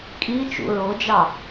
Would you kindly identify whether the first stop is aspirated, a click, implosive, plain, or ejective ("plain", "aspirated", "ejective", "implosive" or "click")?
ejective